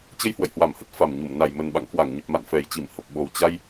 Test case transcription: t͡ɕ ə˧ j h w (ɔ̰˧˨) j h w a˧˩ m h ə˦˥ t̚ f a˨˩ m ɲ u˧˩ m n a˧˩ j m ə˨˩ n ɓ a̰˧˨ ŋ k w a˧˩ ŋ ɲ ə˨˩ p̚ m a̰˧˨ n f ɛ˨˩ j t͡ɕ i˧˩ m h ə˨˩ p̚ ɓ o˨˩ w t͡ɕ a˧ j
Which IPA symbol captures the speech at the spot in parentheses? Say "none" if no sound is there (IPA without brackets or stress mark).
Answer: ə̰˧˨